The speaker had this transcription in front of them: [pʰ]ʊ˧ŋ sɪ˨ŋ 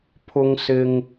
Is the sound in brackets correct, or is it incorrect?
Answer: correct